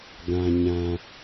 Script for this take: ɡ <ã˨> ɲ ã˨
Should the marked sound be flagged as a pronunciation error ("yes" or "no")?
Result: no